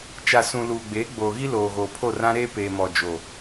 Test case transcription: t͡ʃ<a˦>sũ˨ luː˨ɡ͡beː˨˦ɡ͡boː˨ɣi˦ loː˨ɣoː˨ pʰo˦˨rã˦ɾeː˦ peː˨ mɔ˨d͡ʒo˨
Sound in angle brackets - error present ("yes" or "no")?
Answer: yes